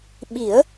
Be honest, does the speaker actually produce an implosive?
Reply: yes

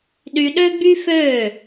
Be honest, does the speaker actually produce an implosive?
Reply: yes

